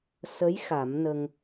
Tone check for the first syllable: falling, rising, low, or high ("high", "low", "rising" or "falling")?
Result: rising